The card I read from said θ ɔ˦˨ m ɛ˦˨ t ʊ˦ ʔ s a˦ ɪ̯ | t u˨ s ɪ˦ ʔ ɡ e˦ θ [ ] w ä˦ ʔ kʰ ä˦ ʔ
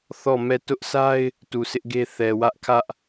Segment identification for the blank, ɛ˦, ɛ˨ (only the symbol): ɛ˨